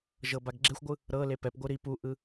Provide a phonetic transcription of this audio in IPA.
ʒ ɤ b a ɡ ɡ͡ǁ e xʷ ɡʷ ɯ | ɾ ɤ l e p ɛ p ɡʷ ɯ ɾ i p u ʔ ɯ

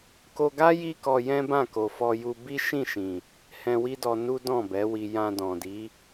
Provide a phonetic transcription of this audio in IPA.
k o˧ ɡ a˦ j i˦ k ɔ˧ j ɛ̃˦ b ã˦˨ k o˨ f ɔ˧ j u˧ b i˦ ʃ ĩ˦˨ ʃ ĩ˨ | h ɛ̃˧ w i˦ d ɔ˧ n u˦ d ɔ̃˦˨ b ɛ˨˦ w i˧ j ã˧ d ɔ̃˨ d i˨˦

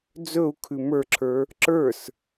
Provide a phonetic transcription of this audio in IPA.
d͡z ɵ u̯ kʰ ʉ m ə˞ ǁʰ ə˞ | ǁ ə˞ s

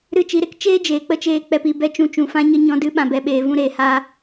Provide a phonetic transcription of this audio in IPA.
ɾ ɨ˦˨ t͡ʃ i˧ ɾ e˦ k t͡ʃ eː˦ d͡ʒ eː˨ k͡p ə˦ t͡ʃ eː˧ k͡p ɛ˧ p i˦˨ b ɛ˦ t͡ʃ ũ˧ t͡ʃ ũ˨ f ã˦ ɲ ə˦ ɲ ɔ̃˦ d ɨ˦ ɓ ã˧ b ɛ˧ ɓ eː˧ v ũ˦ ɾ eː˧ h aː˦

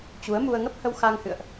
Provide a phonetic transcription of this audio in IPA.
t͡ɕ u˨˦ ə̯ m u˧ ə̯ ŋ ə˦˥ p̚ h ə˧ w x a˧ ŋ h ɨ̰˧˨ ə̯ ʔ

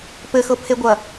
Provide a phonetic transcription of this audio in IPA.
p ɘ x ɤ pʰ e ɡʷ ɐ

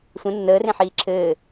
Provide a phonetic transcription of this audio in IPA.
sʷ ə̃ nː əː r ẽ ħ iː ǁʰ ɘː

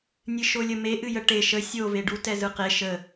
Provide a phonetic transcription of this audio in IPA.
nʲ ɨ ʃ o lʲ ə m e ʔ ɨ j ə ʈ e ʃ ə sʲ o v e ɖ u t ɛ z ɯ q e ʃ ə

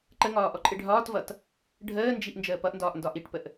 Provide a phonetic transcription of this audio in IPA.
ǃ ə ŋ ɒː ʔ ɔ ǃʼ ɪ ɖʱ ɒː t v ʌ t | ɖʱ əː n d͡ʒ i ʔ n d͡ʒ əː p ʌ ʔ n d ɒː ʔ n d ɒ ʔ i ʈ p ə ʔ

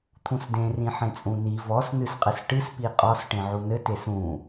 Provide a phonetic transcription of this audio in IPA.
t̪ʰ ũ s d ẽ r ĩ ħ ẽ t͡sʼ ũ n i v ɔ s n ɨ s qʼ ɘ s ʈ ɨ s p i qʼ ɔ s ʈ ẽ ʕ u n ɘ t e s ũ

